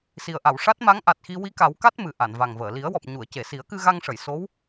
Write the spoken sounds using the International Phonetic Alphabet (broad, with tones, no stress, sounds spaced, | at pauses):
s i˨˩ ə̯ ʔ a˨˩˨ w ʂ a˦˥ t̚ m a˧˥ ŋ ʔ a˨˩ t̚ x i˧ w i˧ k a˨˩˦ w k a˦˥ t̚ m ɨ˨˩ ʔ a˨˩˨ n v a˨˩ ŋ v əː˨˩˨ l i˨˩˦ ə̯ w ɔ˨˩ p̚ ɲ u˨˩˨ ə̯ c e˨˩˨ s i˨˩˦ ə̯ k ɨ˧ ɣ a˧ ŋ ʂ ə˨˩˨ j s o˧˥ w